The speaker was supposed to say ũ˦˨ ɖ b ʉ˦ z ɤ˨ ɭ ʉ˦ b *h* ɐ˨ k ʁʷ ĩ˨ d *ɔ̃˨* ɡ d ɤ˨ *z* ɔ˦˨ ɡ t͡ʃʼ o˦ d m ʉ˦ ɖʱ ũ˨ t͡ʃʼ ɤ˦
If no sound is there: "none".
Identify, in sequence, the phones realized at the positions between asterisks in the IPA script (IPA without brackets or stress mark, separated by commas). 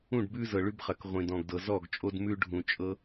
χ, ɔ̃˨, z